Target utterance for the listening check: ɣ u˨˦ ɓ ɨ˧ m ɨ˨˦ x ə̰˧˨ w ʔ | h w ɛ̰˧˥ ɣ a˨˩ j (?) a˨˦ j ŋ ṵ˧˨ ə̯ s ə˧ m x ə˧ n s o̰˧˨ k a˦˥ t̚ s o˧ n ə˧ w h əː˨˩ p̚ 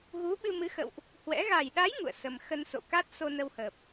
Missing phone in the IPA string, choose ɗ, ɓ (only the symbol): ɗ